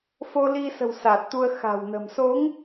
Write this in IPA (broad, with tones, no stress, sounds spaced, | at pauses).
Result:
f o˧ l i˧ s ə̤˨˩ w s aː˨˩ t̚ t̪ u˧ ə̯ x a̤˨˩ w n ə̤˨˩ m s o˨˦ ŋ